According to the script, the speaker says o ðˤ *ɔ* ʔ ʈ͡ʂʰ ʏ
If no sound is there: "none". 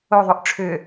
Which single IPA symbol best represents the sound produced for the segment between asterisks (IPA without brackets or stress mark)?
o